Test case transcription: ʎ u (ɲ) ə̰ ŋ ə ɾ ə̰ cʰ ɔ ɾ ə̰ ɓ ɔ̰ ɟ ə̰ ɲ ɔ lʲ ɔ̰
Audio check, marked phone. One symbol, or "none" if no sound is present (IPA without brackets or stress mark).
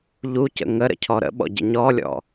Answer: c